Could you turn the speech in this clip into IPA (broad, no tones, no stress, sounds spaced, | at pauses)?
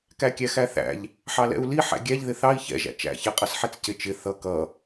k æ kʲ æ x æ θ æ̰ ʎ | ħ ɑ l ɛ̰ u̯ l i ħ æ̰ ɡʲ æ ʎ ð ɪ θ ɑ i̯ ç ɛ̰ ʒ æ̰ t͡ʃ æ̰ ç ɛ qʼ ʌ s ħ ɛ t͡s c ɪ t͡ʃ ɪ θ ʌ k ʌ